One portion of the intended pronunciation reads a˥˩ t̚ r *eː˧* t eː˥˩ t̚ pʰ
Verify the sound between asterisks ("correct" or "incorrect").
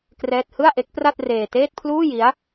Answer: correct